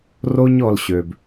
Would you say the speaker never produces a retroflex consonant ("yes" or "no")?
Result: yes